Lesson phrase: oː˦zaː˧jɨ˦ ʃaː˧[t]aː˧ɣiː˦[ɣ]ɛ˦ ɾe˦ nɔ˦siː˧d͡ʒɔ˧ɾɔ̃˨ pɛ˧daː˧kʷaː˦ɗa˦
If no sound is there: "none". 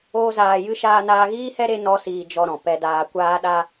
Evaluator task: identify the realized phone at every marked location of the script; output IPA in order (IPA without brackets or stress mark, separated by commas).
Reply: n, h